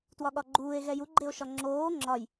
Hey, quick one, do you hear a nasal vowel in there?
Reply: no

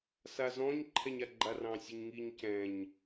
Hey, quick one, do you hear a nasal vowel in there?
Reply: yes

